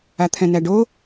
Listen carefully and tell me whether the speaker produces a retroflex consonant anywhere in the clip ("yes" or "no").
yes